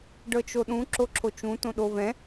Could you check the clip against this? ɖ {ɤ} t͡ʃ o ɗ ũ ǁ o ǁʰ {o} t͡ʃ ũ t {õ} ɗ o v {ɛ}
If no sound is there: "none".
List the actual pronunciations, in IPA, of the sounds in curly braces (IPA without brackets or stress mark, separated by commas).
ɤ, o, õ, ɛ̃